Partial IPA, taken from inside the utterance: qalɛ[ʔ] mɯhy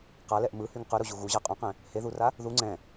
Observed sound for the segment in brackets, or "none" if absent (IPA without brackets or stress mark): ʔ